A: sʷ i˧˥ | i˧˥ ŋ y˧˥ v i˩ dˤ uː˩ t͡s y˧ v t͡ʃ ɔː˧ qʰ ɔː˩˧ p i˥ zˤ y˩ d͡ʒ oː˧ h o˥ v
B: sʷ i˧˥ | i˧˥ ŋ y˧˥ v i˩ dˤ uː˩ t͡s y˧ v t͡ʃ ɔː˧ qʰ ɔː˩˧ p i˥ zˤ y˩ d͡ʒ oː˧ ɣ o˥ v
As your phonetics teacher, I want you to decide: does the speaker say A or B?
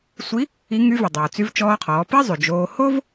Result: A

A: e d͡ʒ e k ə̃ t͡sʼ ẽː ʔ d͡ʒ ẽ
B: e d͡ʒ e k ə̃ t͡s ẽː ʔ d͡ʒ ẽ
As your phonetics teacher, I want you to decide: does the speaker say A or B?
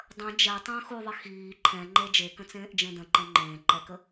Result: B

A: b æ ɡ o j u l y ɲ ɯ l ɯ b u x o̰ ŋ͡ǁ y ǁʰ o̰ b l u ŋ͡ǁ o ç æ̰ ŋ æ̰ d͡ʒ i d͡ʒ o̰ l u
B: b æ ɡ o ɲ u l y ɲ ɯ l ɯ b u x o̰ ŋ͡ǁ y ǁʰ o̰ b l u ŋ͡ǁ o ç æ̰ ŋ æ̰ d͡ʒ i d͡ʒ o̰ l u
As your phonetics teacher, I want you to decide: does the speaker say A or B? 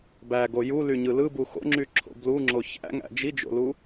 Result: A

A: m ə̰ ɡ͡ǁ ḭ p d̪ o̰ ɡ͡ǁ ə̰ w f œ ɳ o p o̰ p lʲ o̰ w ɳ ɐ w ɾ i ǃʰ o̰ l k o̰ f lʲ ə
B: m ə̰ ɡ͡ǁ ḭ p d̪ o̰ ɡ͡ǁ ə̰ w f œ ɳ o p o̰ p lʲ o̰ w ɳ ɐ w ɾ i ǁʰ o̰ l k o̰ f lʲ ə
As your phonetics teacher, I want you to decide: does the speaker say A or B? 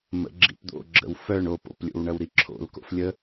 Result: B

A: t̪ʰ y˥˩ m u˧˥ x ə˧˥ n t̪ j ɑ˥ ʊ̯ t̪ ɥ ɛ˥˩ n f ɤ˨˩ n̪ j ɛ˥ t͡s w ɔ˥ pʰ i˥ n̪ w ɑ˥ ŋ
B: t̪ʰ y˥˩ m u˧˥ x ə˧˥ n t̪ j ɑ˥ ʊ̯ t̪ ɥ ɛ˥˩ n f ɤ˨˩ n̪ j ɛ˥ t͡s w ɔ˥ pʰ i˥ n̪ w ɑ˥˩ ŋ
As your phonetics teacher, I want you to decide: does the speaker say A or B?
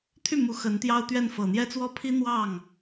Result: B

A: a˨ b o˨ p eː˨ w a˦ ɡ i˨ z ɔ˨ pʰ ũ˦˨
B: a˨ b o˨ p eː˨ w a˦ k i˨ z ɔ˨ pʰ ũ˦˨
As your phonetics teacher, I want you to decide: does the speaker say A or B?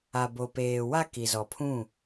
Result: B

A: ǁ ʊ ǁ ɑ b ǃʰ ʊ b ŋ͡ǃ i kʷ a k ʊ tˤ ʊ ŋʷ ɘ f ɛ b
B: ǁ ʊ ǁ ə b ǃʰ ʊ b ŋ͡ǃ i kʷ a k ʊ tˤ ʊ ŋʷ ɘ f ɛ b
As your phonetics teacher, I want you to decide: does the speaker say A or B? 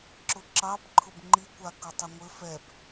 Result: A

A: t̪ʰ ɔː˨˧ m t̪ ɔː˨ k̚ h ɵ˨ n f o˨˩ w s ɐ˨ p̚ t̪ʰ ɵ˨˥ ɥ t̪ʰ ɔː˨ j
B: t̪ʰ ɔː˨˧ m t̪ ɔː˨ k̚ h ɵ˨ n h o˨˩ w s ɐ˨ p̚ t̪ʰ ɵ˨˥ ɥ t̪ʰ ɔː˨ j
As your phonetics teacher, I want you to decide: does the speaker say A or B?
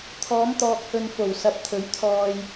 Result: A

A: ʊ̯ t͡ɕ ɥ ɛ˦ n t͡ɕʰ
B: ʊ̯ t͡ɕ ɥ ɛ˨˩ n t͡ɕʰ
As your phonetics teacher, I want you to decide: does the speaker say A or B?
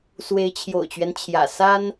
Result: A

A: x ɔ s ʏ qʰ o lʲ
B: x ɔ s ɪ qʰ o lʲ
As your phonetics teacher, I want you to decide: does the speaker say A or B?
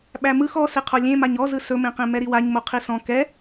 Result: B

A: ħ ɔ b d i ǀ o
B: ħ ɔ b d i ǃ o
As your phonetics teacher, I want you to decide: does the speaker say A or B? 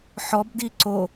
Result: A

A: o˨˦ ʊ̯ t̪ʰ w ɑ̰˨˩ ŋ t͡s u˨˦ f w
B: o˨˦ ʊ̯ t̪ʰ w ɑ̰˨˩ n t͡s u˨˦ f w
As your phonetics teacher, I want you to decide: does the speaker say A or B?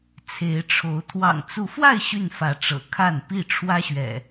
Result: A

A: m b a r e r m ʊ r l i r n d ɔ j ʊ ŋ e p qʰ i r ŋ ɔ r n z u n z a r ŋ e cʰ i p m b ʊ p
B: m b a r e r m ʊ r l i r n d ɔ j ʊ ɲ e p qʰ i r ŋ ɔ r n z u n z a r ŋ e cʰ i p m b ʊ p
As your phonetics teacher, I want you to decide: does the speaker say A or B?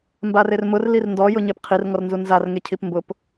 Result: B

